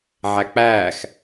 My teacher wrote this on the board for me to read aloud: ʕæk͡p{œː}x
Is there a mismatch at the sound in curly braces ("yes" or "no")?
yes